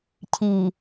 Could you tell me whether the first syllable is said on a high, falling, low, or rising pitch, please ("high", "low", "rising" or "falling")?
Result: low